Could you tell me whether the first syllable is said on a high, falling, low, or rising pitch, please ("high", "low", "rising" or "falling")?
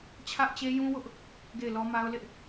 high